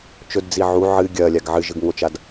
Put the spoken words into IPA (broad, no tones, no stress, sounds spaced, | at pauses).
t͡ʃ ɵ d d͡z i ʕ u ʕ ɨ ɡʲ ɐː lʲ a ɡ ʕ ɨ ʒ ɨ ɡ ŋ o t͡ʃ a d